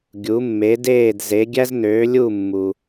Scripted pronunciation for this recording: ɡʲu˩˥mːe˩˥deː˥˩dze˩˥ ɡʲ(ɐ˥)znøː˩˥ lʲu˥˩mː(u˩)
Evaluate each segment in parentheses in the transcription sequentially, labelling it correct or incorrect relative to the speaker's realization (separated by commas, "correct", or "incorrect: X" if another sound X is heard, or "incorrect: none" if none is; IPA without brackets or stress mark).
incorrect: æ˥, correct